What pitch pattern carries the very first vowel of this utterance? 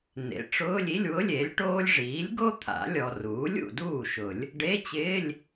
rising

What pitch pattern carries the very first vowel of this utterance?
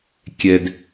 high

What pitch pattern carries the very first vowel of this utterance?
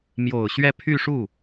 low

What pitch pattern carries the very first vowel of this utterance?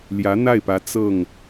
rising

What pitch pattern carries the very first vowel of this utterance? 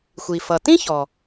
low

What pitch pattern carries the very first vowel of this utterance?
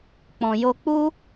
low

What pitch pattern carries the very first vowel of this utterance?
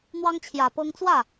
high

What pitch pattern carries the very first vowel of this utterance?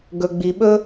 low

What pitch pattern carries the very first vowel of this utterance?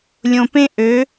low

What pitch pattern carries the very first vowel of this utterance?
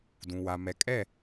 low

